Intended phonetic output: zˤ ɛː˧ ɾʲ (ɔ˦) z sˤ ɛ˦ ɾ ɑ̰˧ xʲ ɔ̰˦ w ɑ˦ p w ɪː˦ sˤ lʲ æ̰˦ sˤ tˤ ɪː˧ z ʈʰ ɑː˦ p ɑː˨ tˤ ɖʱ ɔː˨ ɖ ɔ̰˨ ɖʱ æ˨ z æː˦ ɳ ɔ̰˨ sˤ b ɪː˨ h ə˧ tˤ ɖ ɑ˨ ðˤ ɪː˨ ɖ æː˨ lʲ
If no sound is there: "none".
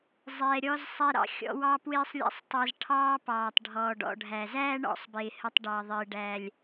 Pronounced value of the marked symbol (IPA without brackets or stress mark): ɔ˦